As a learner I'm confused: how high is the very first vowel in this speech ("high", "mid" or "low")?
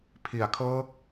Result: high